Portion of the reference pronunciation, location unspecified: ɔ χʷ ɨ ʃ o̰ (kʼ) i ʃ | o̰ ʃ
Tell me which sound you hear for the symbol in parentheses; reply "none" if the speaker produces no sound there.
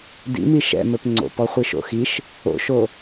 x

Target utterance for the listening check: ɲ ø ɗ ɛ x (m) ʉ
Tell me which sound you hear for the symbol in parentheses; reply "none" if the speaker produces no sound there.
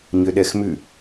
m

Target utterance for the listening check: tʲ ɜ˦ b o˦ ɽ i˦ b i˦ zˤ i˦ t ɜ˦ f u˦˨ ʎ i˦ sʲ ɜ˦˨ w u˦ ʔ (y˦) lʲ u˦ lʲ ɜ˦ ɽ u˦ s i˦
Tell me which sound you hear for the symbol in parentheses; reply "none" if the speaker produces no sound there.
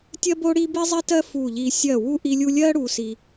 i˦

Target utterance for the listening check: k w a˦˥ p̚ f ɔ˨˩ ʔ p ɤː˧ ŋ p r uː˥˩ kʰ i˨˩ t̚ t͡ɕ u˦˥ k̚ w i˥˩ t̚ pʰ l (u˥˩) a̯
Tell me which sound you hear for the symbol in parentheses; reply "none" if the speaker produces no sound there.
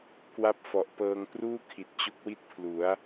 u˩˦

